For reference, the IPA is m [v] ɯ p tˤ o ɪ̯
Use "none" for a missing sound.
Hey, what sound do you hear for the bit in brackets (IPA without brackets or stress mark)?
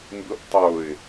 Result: b